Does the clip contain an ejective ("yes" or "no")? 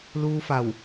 no